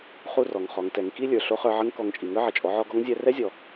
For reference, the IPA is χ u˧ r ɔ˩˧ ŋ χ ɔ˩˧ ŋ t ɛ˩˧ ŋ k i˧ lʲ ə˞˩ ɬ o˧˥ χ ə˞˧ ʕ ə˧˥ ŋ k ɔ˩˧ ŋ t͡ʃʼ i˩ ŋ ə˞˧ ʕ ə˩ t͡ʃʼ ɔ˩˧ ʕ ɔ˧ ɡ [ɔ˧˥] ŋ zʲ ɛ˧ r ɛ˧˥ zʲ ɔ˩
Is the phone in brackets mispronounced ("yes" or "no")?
no